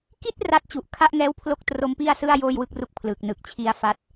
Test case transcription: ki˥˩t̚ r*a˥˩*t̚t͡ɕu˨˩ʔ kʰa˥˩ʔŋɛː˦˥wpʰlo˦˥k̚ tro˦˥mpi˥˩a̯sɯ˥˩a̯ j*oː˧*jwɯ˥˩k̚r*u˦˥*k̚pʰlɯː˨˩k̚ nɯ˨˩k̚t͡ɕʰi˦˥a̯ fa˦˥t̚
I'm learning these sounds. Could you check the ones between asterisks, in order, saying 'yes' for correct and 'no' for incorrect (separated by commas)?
no, no, yes